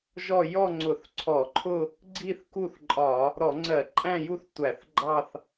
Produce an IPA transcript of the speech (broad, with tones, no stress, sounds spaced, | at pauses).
ʒ ɔ˥˧ j ɔ˥˧ ŋ͡ǀ ʊ˧˩˧ θ ǀʰ ɔ˧˩˧ ǃʰ ʊ˥˧ | ɡ͡ǀ i˥˧ θ k u˥˧ θ ǃʼ ɒ˧˩˧ | ɾ ɔ˧˩˧ ŋ͡ǀ ɜ˧˩˧ ǃʼ æ̃˥˧ j u˥˧ θ tʷ æ˧˩˧ θ ɡ͡ǃ ɑ˥˧ θ